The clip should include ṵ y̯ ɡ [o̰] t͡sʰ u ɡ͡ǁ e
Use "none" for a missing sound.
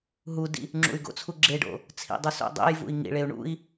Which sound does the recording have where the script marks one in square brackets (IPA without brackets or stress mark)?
o̰